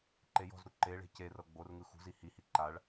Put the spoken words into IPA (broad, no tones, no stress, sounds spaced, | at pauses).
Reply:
ǃ e j ɔ̤ z ɾ u ǃ e ɭ e̤ c e r ɤ ɡ͡b o r ŋ ɯ x ṳ z i h i h i ǃ a ɭ